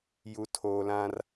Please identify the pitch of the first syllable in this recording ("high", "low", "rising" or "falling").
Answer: low